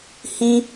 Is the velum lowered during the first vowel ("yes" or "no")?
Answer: yes